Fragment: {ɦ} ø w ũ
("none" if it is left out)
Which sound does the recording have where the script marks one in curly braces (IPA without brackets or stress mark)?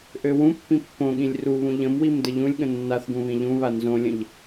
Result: ʔ